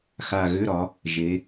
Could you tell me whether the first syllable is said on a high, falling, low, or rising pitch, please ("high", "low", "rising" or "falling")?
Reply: low